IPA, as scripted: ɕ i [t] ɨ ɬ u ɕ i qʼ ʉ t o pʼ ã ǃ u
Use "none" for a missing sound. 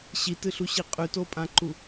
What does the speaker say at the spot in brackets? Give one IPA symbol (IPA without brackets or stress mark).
t